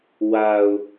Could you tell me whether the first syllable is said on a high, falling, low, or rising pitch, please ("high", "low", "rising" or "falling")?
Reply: low